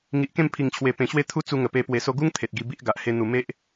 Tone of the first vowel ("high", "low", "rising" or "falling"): low